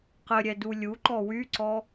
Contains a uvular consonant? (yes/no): yes